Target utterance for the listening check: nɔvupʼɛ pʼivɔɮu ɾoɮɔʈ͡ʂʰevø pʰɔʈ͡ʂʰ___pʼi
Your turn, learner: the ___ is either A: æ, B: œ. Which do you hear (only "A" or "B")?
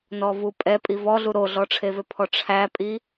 A